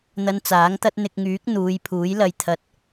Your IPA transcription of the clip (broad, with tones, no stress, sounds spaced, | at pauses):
n̪ ɐ˧ n t͡s aː˨˥ ŋ t̪ ɐ˧ t̚ n̪ ɪ˨ k̚ ŋ yː˨˥ k̚ n̪ uː˨˧ j pʰ uː˨˥ j l ɐ˨ j t̪ʰ ɐ˨˥ t̚